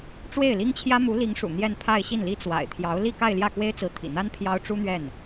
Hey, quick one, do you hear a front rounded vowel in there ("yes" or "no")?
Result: no